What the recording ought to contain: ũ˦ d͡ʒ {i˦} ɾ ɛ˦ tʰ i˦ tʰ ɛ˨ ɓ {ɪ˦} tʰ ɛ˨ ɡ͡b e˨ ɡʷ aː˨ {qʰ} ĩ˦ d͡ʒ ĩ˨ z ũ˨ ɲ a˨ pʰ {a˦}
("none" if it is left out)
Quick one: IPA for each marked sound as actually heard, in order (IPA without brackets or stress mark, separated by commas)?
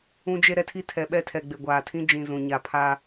e˦, ɛ˦, tʰ, a˦